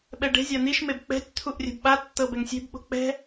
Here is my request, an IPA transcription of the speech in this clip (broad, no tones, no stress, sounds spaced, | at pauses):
ɓ ɛ ɖ e̤ zʲ a n̪ i ʃ m e b k͡p ɛ̤ tʲ t̪ʰ u ʔ rʲ ɛ̤ b ɓ a tː ɤ b ɛ ŋ sʲ e̤ b ɓ o̤ k͡p ɛ̤